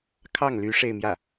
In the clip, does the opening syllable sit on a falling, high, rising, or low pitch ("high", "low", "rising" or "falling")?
falling